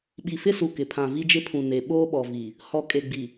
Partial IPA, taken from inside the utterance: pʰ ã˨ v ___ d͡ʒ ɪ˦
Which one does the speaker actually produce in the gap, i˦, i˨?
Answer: i˦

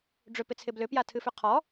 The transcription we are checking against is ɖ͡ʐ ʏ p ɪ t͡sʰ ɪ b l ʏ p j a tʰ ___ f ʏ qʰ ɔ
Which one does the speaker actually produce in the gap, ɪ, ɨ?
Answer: ɨ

